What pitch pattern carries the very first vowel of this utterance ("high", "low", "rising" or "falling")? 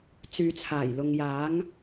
low